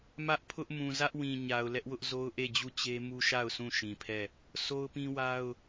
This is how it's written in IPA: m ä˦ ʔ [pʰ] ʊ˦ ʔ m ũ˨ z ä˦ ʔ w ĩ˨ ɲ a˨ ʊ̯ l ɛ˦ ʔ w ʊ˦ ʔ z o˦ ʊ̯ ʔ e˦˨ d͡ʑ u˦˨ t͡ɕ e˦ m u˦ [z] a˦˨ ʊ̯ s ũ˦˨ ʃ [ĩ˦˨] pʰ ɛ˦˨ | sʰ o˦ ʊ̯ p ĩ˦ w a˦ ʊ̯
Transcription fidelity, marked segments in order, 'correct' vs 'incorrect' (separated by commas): correct, incorrect, incorrect